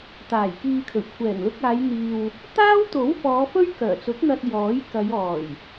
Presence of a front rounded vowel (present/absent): present